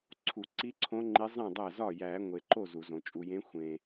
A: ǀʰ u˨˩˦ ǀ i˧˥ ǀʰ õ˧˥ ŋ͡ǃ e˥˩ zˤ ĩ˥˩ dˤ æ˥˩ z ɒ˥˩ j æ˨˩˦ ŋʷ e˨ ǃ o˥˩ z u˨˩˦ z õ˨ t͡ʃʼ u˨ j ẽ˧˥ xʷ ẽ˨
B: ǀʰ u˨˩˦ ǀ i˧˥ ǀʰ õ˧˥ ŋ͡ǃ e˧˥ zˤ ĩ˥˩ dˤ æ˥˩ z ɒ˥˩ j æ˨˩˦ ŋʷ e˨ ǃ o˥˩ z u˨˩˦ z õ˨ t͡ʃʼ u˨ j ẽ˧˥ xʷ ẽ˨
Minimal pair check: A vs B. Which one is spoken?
B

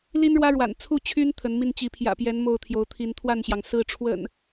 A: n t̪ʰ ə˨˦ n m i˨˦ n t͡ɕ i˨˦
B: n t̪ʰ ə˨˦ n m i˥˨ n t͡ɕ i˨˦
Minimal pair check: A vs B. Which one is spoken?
B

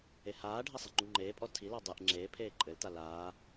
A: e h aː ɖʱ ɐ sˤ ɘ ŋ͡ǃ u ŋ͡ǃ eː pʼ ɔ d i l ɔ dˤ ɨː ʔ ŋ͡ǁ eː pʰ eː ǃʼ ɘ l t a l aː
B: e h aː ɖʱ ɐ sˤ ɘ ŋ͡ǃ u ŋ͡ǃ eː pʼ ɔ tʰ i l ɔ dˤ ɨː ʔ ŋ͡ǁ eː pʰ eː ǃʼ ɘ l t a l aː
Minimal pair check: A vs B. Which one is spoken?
B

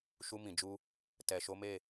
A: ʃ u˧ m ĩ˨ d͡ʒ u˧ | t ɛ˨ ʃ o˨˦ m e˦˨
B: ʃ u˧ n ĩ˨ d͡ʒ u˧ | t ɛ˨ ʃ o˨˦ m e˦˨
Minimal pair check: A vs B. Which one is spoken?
A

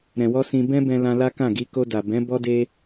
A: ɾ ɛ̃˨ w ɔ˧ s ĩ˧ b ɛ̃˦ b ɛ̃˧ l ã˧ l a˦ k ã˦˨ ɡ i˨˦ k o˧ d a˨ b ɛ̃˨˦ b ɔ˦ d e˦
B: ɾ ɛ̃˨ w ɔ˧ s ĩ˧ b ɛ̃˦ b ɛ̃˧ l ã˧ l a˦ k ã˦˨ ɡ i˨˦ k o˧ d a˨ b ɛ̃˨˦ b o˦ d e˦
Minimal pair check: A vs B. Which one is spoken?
A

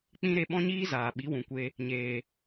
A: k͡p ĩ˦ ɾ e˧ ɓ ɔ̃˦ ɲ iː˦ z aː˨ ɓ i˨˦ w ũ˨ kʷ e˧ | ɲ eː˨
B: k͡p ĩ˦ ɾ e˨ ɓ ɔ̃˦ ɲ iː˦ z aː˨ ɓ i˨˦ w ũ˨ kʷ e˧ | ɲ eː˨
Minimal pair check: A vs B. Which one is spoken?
A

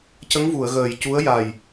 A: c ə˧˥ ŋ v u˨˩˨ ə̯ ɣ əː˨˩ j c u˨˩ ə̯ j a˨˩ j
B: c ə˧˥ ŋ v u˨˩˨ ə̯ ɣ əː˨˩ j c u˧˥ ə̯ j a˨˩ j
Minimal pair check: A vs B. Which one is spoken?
B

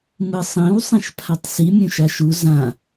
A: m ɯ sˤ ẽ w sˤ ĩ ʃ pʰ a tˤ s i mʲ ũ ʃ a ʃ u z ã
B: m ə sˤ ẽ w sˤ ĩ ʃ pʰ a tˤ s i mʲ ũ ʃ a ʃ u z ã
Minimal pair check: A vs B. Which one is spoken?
A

